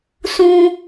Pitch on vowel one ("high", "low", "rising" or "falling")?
high